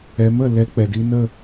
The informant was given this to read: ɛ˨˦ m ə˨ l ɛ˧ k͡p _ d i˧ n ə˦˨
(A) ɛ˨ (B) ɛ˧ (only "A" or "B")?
A